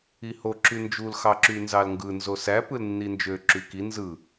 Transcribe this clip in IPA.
iho ǁynd͡ʒul xɑǁynzɑlŋɡɯ nzosæ pɯlnːind͡ʒø ǁyki nzɯ

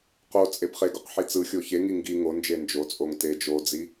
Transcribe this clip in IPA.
qo t͡sʼebχeɡoq ħit͡sɯxʲo çeŋi ŋɡi ŋond͡ʒe nd͡ʒot͡sʼoŋ te d͡ʒod͡zi

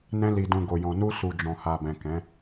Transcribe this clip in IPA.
nɛ̃˧li˨dũ˨ ɡo˨jɔ̃˨nu˧ su˨d͡ʒɔ̃˨ha˨bɛ̃˨ kɛ̃˨˦

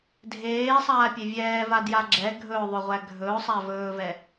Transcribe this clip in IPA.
dʱeːsˤaːpʲe vʲɛːvadja ɡ͡ǁɛ ɡʱɵʊ̯ðˤɵʁʷæ ɡʱɵʊ̯sˤæ vɵːvɛ

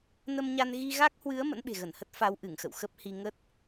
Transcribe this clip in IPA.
nə˧mɲa˧n ɣi˧ɣa˦˥k̚hwɨ˨˦ə̯ mə̰˧˥nɓe̤˨˩ɣə˧˩nhə˦˥t̚ fa˨˦w ʔɨ˧˩ŋxə̰˧˨w xə˦˥p̚hi˧ ŋə˦˥t̚

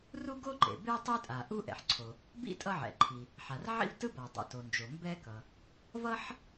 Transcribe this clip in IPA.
ru˥ɡo˥ǃḛ˩be˥o̯ tˤe˥tʼa˩ ʔu˥ʔɛ̰˩ħǀʰo˩ | bḭ˥ tʼʌ˥ʕɛ̰˩ǃʰi˩ | ħa˩rʕḭ˥vtɯ˥ba˩ dˤo̰˩to˩nd͡ʒo˩ mbɛ˥kʌ˩ | vʌ˥ħ

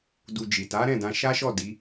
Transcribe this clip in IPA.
du˧d͡ʒi˨ ta˨˦ɾɛ̃˦˨dã˧ ʃa˦ʃɔ˦˨ di˨˦

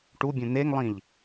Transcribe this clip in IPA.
ʈubʲõ n̪eŋlˠĩʎ

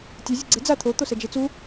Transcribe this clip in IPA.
tʲe zʲɯɡ͡ǀe d͡za t̪ʰo t̪osɛd͡ʒet͡su

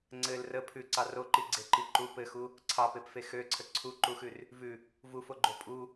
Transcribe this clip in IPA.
ŋ͡ǀɘl rə pʰʉǀɑ roǃiɡ͡ǀeǃi ǃu pɘxu | ǀʰɑpepfe xøǀʰə ǀʰuǃuxʉr | vʉ | vufoɡ͡ǃo pʼu

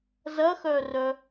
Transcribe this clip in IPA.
zɐxœrœ

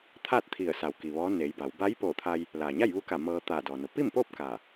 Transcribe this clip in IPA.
t̪ʰaː˥˨t̚t̪ʰi˧˩ə̯sa˩w ki˩ʋɔː˧˥neː˩˧jba˩˧w ba˧˥jpoː˧˩t̪ʰa˧j | laː˩ɲa˥˨jʋu˧˥ka˧˩ mɤː˧ t̪aː˧˩dɔː˩no˩˧ pi˥˨mpoː˥˨p̚ kaː˧˩

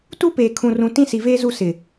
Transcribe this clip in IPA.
tu˦peː˨kʰũ˨rũ˨ tĩ˦si˨veː˦zu˦˨ sɪ˨

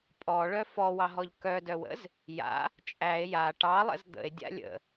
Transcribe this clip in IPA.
pʼɔɭœ fɔwɑɦɔʎ kœdœwə̰z | ja̰ | t͡ʃʼæe̯ ja ʈɑlˠə̰z d̪ə̰e̯dʲa̰ lʲə̰

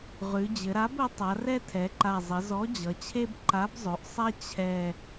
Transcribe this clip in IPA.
ʁʉ˩˧d͡ʑɘ˩˧ɾa˨˥b ɘ˨˥ tˤa˩˧rɛ˦ tʰɛ˩˧ǃa˨˩ zˤɘ˩˧zɔ˨˥d͡ʑʌ˩˧t͡ɕʰe˦b ǃa˨˥bzˤø˩˧ʔsˤɛ˦ t͡ɕʰɛ˨˩

